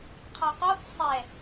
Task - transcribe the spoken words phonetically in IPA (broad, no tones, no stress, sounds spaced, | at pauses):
qʰ ɒ q ɔ θ sˤ ɛ